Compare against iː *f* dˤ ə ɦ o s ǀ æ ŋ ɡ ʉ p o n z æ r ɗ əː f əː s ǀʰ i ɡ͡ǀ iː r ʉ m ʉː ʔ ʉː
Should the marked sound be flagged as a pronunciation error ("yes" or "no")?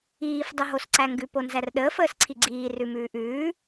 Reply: no